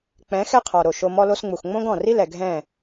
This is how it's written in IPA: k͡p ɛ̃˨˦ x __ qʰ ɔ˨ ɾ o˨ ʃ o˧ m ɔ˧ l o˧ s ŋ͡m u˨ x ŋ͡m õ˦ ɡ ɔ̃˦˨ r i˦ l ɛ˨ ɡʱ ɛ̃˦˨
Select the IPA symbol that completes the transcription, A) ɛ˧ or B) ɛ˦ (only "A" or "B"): B